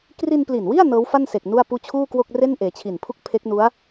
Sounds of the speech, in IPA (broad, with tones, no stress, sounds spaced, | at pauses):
k r i˧ n p l i˨˩ n w i˥˩ a̯ n ɤː˦˥ w f a˥˩ n s e˨˩ k̚ n u˥˩ a̯ p uː˥˩ t͡ɕʰ uː˥˩ k w o˥˩ k̚ r e˥˩ n ʔ eː˩˦ t͡ɕʰ i˨˩ n pʰ u˥˩ k̚ pʰ e˦˥ k̚ n u˦˥ a̯